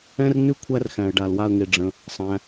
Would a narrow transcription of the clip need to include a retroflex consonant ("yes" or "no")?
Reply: yes